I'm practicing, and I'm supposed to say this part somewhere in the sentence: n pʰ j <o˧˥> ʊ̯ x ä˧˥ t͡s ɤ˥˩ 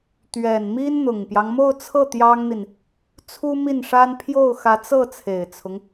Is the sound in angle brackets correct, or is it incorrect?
incorrect